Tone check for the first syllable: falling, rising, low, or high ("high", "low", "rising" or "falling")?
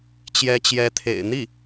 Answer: rising